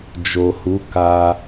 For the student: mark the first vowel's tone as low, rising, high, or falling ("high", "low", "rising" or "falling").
low